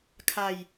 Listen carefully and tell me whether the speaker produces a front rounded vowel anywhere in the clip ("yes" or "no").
no